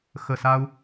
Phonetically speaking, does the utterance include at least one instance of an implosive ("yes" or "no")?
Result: no